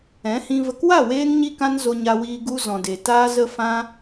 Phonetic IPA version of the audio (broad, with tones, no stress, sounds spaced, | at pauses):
ɛ̃˨˦ h ĩ˧ v ə˨ k w a˦˨ w eː˧ ŋ ɲ i˧ k ã˧ n z o˧ ɲ a˧ w iː˧ ɡ u˧ z ɔ̃˨ d e˨ t aː˧ z ə˧ f ã˧